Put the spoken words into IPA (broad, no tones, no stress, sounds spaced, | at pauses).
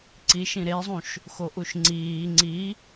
ǀ i ʃ ĩ ɾ e zˤ ũ ʃ | x o ʔ u ʃ ŋ͡ǀ iː ŋ͡ǀ i